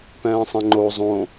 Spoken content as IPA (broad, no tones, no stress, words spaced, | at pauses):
pɛ̃ːsˤɛ̃ŋ͡ǃo zˤõ